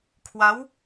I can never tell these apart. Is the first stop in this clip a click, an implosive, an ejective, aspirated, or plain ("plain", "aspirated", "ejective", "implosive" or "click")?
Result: aspirated